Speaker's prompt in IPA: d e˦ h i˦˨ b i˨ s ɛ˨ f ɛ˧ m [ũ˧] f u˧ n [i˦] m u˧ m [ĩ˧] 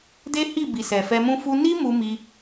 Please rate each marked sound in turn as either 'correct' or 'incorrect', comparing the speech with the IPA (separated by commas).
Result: incorrect, correct, incorrect